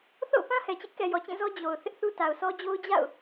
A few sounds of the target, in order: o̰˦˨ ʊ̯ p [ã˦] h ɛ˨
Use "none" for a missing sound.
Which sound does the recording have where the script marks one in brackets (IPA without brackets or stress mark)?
ã˦